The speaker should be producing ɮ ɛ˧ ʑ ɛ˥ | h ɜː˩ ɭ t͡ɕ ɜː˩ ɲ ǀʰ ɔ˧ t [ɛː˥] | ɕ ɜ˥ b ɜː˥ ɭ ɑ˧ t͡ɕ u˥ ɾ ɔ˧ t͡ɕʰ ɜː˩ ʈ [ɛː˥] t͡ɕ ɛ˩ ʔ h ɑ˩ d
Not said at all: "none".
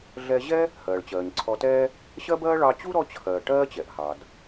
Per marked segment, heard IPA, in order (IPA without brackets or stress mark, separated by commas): ɛː˥, ɜː˥